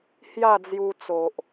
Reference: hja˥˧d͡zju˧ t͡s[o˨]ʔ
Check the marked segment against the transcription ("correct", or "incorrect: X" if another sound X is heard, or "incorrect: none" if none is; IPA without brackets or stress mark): correct